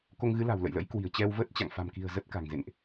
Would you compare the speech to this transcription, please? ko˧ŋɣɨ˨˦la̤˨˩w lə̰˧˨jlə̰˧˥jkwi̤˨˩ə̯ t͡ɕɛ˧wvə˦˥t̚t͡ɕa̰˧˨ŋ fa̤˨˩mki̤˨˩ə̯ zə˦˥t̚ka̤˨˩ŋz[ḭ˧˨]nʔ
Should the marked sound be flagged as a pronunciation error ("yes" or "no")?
yes